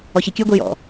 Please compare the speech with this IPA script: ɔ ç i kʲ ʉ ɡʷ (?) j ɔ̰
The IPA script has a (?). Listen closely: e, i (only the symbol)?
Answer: i